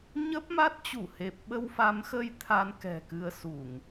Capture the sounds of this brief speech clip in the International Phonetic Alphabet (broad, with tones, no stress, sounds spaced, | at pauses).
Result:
ɲ ə˦˥ p̚ m a˦˥ t̚ t͡ɕ u˧˩ h e˨˩ p̚ ɓ ə˧ w f a˨˦ m x ə˧ j t̪ʰ a˧ n k ɛ̤˨˩ k ɨ˧ ə̯ s u˧˩˨ ŋ